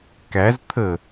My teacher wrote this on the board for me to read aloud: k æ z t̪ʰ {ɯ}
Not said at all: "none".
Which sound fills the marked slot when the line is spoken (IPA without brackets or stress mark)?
ə